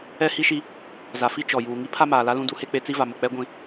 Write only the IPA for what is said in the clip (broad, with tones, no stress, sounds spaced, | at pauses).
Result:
ɛ˦ h i˦ ʃ i˦ | z a˨ f i˦ t͡ʃ ɔ˨ j uː˨ ŋ i˦ pʰ a˦ m aː˨ l a˦ l ũ˦ d u˦ h e˦ k͡p e˦ t͡s i˦ v a˨ m ʊ˨ k͡p ɛ˦ ɡʷ ĩ˨